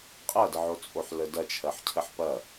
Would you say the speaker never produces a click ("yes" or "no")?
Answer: yes